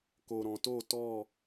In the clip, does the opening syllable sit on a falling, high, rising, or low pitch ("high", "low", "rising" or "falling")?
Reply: low